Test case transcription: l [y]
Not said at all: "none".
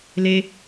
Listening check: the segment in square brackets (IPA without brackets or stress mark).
e